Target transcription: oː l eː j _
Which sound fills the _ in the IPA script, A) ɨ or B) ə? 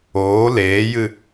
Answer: A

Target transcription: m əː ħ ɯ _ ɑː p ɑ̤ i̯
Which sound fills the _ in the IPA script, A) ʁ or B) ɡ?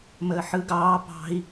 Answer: B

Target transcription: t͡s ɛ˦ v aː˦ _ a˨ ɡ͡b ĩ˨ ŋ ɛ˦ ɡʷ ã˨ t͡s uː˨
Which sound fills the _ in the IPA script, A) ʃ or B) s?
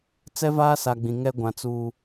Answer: B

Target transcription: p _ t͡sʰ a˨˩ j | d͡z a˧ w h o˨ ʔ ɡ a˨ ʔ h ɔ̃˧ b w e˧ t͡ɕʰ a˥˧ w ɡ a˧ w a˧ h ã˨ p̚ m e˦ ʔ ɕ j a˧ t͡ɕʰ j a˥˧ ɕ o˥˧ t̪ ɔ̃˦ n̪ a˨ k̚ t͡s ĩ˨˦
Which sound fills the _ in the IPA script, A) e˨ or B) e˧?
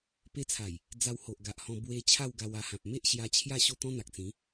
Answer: B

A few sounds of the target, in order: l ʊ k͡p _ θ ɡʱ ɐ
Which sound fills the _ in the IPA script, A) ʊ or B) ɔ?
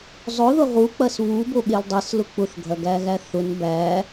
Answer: A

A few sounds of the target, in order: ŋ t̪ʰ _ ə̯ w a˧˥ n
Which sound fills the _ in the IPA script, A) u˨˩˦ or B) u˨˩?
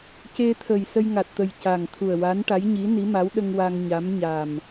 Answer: B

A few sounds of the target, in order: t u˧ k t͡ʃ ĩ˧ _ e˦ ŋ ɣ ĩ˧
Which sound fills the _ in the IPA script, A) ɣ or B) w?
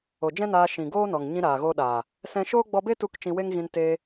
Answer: B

